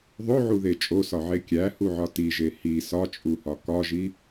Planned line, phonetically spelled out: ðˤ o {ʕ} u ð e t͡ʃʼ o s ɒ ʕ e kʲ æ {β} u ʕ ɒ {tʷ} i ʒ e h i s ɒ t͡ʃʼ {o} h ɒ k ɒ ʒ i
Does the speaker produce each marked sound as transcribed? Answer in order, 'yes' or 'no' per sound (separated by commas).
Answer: yes, no, no, no